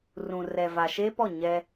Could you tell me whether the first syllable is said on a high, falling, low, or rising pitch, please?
low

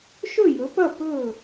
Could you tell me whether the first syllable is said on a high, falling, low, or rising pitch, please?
falling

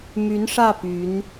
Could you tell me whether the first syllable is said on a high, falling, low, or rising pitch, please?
rising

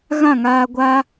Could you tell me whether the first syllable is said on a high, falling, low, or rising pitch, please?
falling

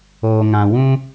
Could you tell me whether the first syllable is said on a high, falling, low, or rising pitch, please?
low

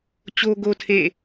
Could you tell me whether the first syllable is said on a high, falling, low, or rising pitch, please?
high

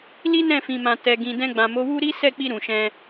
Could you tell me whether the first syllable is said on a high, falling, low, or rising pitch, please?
high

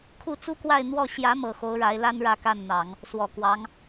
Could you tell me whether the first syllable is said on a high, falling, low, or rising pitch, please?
falling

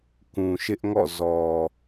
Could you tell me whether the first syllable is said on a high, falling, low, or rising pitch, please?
low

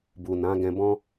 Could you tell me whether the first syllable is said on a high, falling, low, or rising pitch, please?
low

